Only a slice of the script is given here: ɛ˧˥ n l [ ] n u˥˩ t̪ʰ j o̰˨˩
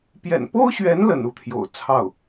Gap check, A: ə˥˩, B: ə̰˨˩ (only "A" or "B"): B